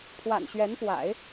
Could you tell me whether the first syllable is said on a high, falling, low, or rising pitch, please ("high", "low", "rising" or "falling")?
low